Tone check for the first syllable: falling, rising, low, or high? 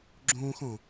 high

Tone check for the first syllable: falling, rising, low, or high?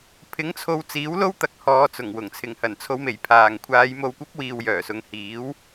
rising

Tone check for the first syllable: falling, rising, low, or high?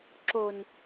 low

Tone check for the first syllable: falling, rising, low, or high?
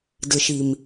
low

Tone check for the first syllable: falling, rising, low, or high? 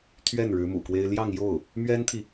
falling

